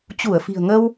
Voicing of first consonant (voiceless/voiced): voiceless